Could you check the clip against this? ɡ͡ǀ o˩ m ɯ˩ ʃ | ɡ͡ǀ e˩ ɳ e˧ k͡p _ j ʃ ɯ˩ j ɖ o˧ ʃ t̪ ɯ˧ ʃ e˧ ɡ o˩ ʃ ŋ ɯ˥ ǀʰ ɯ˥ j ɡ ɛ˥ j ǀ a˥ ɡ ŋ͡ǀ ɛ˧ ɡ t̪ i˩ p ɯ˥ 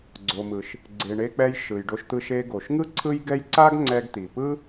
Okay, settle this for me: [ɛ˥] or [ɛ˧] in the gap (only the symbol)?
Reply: ɛ˧